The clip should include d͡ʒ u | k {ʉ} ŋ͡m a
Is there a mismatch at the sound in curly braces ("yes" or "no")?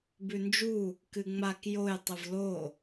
yes